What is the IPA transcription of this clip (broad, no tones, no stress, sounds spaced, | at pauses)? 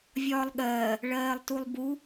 vʲ ɒː lˠ ɠ ɜː | ɭ ɜː lˠ t u lˠ b u